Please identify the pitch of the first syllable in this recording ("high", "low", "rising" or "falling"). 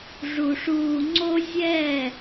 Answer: low